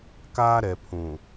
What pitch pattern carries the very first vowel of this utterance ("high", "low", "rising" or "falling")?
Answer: high